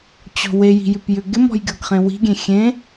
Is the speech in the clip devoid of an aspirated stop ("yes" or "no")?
yes